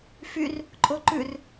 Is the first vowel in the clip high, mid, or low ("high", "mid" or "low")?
high